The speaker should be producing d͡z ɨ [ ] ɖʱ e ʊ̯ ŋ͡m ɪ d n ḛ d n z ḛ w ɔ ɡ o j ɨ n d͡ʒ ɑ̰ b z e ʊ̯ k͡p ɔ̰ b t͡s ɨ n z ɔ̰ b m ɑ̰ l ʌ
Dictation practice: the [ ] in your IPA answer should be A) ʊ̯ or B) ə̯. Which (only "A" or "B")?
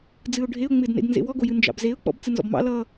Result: A